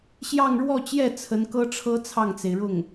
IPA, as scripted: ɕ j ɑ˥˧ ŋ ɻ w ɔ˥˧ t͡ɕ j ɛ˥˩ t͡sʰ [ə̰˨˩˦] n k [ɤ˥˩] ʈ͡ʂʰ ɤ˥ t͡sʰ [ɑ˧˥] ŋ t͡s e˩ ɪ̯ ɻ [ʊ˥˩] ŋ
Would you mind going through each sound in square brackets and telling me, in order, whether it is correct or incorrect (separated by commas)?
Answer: incorrect, incorrect, incorrect, correct